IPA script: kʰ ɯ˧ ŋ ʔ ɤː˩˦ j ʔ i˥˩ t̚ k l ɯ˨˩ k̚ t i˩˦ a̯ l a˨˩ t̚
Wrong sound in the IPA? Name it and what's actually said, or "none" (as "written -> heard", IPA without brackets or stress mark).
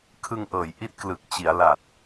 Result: t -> t͡ɕ